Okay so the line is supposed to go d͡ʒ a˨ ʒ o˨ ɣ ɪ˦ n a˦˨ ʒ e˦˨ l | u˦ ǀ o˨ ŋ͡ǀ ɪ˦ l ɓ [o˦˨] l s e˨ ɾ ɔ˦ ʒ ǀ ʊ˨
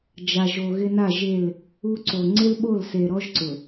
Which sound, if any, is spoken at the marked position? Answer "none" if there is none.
o˦˨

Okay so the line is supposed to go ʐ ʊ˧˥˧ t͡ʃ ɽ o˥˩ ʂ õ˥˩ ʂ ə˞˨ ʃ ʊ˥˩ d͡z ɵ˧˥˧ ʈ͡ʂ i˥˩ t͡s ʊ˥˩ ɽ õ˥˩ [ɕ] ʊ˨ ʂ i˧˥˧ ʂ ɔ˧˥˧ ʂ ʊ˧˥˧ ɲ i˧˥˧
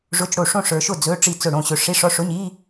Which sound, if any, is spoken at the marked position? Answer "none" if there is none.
ɕ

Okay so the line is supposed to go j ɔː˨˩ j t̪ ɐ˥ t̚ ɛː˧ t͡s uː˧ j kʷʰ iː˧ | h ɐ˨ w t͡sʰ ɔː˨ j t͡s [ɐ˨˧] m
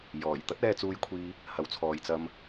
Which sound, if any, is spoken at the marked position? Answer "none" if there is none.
ɐ˧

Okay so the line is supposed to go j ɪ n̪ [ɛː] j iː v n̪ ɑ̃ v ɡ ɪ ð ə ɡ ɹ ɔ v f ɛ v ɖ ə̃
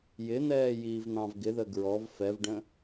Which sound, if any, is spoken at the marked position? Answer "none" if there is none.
ɛː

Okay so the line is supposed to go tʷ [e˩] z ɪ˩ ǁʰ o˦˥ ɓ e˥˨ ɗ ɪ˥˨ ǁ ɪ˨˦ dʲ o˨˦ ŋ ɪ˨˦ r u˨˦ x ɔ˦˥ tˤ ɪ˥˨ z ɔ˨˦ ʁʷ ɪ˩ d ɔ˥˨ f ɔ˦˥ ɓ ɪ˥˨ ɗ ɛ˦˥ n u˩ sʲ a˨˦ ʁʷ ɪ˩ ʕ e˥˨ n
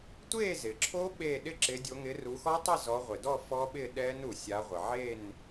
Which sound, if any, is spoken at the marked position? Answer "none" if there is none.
e˥˨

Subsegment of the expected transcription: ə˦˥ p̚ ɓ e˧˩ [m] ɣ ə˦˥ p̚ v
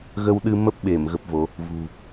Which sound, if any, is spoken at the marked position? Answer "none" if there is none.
m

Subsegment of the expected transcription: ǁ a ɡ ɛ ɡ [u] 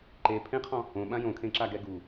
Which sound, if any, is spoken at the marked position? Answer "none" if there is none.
u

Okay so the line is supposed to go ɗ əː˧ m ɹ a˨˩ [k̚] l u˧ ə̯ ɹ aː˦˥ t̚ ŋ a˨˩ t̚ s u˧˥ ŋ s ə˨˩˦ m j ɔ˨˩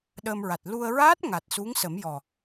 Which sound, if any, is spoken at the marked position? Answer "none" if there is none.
t̚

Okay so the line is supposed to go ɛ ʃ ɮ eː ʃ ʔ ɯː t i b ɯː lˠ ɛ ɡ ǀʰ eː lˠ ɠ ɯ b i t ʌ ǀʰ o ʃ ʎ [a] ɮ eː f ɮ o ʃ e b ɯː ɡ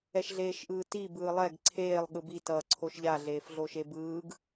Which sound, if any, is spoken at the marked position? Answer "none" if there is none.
a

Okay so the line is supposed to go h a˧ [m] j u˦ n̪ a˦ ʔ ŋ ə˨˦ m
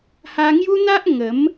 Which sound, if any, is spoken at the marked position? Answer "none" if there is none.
ŋ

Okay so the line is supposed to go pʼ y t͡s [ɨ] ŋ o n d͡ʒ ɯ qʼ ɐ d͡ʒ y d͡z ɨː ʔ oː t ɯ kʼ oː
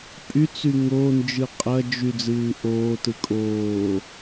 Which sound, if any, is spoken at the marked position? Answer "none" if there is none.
y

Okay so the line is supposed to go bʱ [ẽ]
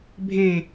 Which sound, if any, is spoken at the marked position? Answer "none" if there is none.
ẽ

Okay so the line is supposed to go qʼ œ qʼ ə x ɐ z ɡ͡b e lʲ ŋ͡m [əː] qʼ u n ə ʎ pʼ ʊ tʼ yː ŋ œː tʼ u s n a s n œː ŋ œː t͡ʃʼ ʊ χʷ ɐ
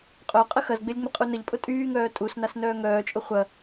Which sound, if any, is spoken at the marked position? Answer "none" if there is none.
ə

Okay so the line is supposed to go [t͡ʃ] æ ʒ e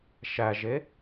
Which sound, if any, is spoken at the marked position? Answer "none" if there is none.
ʃ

